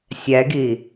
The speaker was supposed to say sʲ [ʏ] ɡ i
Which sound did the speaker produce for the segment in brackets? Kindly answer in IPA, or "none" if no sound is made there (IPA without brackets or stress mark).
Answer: ɛ